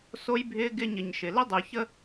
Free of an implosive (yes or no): yes